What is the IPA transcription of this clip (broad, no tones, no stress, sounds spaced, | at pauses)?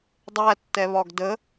dˤ æ tː ɛ β ɒ ɡ d ə